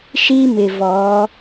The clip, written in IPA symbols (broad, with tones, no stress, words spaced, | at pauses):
ʃi˦mɪ˨ vɔ˨˦